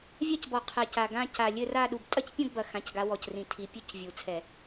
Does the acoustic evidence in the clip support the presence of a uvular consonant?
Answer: yes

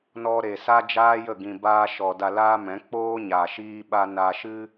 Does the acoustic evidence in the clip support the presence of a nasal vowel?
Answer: yes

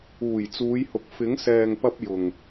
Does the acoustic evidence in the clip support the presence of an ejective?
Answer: no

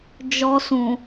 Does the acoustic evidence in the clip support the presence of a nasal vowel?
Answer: yes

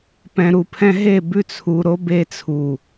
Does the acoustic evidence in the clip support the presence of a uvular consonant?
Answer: no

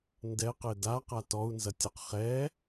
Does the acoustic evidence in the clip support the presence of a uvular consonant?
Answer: yes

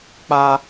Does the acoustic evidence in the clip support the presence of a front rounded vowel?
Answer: no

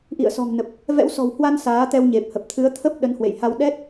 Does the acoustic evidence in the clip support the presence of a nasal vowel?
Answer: no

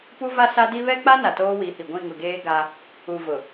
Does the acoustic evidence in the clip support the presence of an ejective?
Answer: no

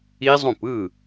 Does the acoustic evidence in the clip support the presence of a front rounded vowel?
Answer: no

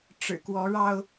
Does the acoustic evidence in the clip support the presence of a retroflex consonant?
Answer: yes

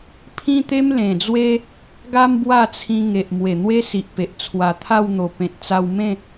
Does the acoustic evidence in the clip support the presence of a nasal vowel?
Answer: yes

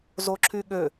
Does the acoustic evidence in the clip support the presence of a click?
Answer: yes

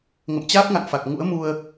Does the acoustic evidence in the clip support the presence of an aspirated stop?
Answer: no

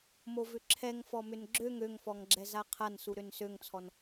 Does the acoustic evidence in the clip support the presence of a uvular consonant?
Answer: yes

